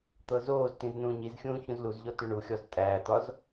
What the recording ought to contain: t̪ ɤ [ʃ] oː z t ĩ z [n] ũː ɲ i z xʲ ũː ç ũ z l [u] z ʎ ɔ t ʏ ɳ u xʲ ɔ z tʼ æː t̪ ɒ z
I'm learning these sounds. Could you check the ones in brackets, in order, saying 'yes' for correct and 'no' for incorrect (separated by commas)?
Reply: no, yes, yes